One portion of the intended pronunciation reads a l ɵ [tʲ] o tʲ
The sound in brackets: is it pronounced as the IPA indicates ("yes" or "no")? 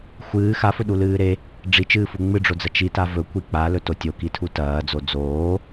no